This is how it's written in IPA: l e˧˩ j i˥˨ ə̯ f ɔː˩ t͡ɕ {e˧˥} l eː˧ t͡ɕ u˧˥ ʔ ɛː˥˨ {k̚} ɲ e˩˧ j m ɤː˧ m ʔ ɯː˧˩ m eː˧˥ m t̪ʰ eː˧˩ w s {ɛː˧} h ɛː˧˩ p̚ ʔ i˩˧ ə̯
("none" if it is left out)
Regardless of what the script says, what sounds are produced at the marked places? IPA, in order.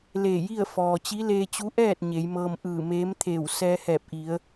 i˧˥, t̚, ɛː˧

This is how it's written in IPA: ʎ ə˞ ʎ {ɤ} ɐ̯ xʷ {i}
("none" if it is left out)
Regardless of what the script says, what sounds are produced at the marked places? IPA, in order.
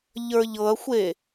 ɤ, e

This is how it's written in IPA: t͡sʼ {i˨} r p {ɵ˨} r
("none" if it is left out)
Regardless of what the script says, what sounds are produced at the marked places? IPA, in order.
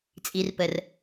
i˨, ə˨

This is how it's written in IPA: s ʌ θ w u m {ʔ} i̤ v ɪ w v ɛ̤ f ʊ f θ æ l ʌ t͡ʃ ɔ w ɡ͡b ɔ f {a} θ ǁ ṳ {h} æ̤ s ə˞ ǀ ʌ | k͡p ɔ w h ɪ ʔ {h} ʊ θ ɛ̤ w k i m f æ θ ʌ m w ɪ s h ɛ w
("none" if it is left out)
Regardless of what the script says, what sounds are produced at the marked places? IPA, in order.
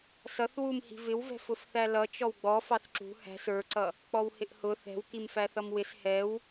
h, ɑ, h, h

